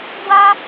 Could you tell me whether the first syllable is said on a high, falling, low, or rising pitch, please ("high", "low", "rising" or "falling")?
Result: high